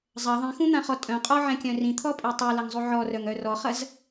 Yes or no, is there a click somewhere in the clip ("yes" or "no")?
no